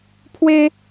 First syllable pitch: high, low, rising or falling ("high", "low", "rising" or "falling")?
high